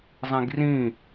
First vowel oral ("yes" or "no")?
no